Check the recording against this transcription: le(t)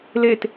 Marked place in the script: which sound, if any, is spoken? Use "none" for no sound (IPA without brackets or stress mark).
t